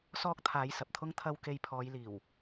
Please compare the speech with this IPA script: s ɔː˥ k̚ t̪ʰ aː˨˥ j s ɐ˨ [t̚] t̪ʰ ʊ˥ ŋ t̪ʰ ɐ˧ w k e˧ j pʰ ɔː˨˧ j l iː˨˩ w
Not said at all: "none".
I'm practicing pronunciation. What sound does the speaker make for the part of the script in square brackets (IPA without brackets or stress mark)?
p̚